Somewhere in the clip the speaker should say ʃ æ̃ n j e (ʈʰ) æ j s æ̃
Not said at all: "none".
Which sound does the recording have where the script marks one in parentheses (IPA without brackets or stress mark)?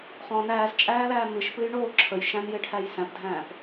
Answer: ʈʰ